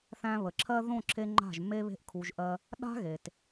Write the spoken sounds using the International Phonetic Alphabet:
θæ̃˧βə˨ǁʰɜ˦ ðõ˦˨ǁʰe˧ ŋ͡ǃa̤˦˨ʒmːe˦βe̤˦ʔ kʰu˧ʒʔɜ˦ | ɗa̤˦ɣe˨t

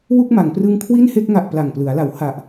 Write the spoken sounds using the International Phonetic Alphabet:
wu˥˩k̚ma˩˦ŋprɯ˦˥ŋ kʰwi˥˩nhe˥˩k̚ŋa˨˩ʔ pla˨˩ŋplɯ˩˦a̯la˩˦w ha˨˩ʔ

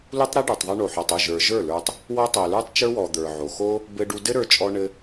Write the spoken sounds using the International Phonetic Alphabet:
lu˦tˤɾɘ˦ ɖə˞˨tˤðˤə˞˦ ɳo˨ħɔ˨tˤu˦˨ ʒə˞˨ ʒə˞˦˨lə˞˧tˤ | wɔ˦ tˤo˨lə˞˦tˤt͡ʃə˞˦wɔ˨ d̪ə˞˨ʕo˨ xo˦ | bɘ˧ɖu˧ dɘ˦ɾə˞˧t͡ʃʼɔ˧ɳɘ˧

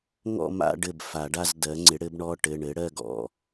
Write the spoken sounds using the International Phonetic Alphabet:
ŋɔ̰˥˧ma̰˥˧ɖɘ˧˩b fa˨˩˦ɖa˥˧z dɜ˩˥ ŋ͡ǀɪ˩˥ɽɘ˩˥b ɳɔ˧˥˧ʈɘ˩˧˩ ɳɘ˩˥ɽɜ˥˧ɡɔ̰˥˧

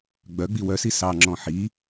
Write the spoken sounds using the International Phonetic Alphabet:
ɡ͡bœɡ͡bi wœsi sɑŋ͡ǁɔ̃ ħi

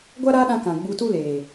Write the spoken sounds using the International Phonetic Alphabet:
ɡʷa˦ɾaː˦ɗã˧ kã˨ɡ͡bu˧ tu˦leː˨

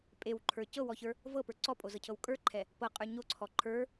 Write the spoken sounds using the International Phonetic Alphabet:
pʼewǃʰə˞ cɤwɔçə˞ | vɤpə˞ ǀɔpʼozɤcʰɤw kʼə˞ǃʰɛ | pɤqʼə˞ ɲoǀʰɔ ǃʰə˞

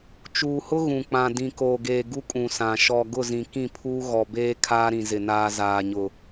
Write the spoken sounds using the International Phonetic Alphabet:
t͡ʃuː˨hʊ˦ ɣũ˨k͡pã˨ dĩ˨ koː˨ɡeː˨ ɡu˦kʼũ˨ sã˨ ʃɔ˨ɡʊ˦˨ zĩ˨kĩ˦˨pʰuː˦ ɣɔ˨beː˦ kʰaː˦ɾĩ˨zɪ˨naː˦ zaː˨ɲʊ˨

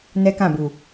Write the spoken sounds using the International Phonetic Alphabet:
nɛ˦kã˦˨bu˨

